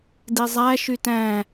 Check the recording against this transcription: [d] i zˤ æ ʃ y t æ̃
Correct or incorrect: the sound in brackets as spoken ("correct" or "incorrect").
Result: correct